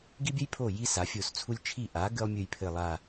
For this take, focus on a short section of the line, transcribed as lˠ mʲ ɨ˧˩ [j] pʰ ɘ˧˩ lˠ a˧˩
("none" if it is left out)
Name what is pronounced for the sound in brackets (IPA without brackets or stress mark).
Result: j